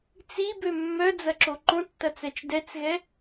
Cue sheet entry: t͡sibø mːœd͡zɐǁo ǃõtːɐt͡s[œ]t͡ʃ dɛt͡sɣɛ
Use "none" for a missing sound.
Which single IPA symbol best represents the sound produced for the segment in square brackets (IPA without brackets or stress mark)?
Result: ɛ